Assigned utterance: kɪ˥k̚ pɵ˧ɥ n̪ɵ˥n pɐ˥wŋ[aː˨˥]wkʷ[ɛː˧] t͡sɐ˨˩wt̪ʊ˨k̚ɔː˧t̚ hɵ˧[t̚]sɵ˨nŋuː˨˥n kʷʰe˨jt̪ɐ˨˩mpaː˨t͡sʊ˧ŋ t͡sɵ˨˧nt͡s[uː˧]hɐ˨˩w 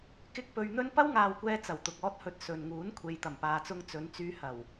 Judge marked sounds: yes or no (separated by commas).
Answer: no, yes, yes, no